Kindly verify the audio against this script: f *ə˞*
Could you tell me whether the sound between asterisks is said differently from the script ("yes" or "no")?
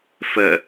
yes